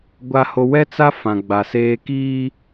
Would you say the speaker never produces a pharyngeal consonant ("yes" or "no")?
yes